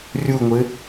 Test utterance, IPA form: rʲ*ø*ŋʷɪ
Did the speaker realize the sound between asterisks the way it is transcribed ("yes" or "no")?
no